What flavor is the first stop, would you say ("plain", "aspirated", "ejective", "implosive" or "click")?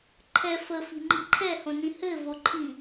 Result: click